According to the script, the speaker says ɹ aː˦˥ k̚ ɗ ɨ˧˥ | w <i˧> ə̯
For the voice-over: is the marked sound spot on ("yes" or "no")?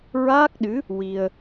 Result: yes